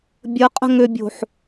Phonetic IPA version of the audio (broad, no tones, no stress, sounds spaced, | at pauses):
bʲ ə qʼ ə̤ ŋ ʏ bʲ o̤ ħ